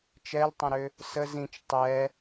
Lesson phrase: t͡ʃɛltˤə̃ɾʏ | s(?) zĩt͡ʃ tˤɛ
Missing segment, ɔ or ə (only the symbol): ə